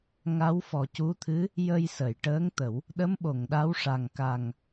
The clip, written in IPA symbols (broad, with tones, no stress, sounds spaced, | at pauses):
ŋ a˧˥ w f ɔ˨˩ c u˧˥ t̪ʰ ɨ˧˥ | j ə˧ j s ə˨˩˨ j ʈ əː˧˥ ŋ t̪ ə˨˩˦ w | ɗ ə˧˥ m ɓ o˨˩˨ ŋ ɗ a˧˥ w ʂ a˨˩ ŋ k a˨˩ ŋ